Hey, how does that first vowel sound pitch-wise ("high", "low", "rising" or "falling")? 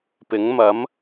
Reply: rising